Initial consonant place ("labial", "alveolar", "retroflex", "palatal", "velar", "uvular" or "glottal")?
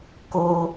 velar